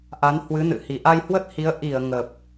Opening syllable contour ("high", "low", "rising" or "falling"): rising